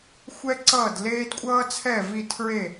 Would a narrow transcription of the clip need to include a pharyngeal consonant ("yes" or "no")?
no